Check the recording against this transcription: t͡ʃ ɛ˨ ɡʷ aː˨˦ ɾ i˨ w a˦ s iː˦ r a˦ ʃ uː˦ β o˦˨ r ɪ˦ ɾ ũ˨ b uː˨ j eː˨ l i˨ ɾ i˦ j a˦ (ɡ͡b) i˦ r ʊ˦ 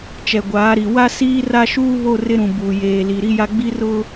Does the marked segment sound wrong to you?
no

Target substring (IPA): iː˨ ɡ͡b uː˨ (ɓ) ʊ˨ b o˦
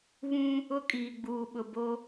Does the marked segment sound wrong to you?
no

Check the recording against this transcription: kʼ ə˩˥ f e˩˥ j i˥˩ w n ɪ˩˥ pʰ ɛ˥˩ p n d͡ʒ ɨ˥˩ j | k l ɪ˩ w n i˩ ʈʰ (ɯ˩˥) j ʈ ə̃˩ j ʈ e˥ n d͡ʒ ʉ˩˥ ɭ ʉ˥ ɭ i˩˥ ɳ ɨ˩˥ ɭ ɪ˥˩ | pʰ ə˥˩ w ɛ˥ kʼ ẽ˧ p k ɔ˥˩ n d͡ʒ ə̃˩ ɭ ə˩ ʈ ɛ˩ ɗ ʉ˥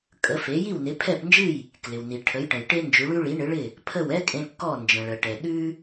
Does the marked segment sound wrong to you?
yes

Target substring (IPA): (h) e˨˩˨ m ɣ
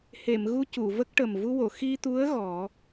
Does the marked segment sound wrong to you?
no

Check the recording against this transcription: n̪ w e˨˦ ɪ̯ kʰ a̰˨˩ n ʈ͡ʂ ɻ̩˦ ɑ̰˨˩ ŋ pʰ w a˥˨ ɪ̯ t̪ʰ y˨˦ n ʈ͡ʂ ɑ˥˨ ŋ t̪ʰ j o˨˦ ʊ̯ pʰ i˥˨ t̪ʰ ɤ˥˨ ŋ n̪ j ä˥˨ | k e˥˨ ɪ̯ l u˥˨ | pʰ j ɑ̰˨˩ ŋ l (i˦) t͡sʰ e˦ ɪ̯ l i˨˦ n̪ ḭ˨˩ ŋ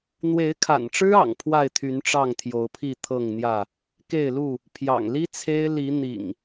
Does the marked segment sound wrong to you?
no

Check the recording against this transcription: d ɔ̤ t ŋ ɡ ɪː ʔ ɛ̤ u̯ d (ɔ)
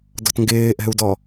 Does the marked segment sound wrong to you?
no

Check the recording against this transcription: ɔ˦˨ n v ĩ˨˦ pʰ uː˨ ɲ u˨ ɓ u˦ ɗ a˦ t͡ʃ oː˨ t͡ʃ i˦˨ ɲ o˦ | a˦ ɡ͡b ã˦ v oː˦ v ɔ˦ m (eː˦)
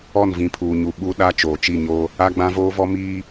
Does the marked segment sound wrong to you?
yes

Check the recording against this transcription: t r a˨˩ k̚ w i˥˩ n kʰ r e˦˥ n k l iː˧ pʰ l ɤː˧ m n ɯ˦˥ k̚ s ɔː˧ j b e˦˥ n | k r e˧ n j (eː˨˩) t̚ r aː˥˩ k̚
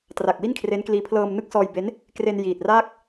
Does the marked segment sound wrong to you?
yes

